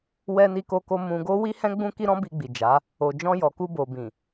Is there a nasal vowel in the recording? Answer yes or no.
yes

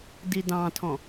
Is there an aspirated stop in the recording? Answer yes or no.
yes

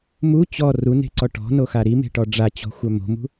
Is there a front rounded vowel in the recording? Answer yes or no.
yes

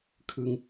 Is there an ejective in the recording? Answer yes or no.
no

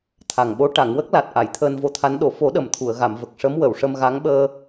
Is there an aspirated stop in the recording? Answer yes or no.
yes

